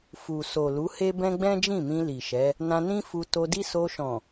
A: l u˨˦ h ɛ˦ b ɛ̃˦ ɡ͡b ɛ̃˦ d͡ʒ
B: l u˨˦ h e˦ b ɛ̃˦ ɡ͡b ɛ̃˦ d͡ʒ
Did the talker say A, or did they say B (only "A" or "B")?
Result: B